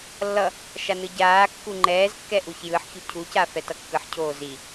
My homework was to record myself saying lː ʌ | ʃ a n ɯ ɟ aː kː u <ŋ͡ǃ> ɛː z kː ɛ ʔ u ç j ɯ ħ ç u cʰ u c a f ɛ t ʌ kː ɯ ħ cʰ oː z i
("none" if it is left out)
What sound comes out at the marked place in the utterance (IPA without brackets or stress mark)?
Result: ŋ͡ǃ